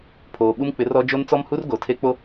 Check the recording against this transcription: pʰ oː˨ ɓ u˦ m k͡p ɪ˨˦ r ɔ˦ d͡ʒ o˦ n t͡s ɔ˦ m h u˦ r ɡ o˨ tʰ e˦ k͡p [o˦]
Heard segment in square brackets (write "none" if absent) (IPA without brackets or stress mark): o˦